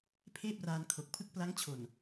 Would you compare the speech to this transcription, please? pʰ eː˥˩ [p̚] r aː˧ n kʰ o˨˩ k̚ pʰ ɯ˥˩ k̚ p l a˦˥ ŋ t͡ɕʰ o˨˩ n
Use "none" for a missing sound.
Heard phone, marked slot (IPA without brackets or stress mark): p̚